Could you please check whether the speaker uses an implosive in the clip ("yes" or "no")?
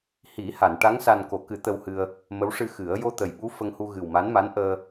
yes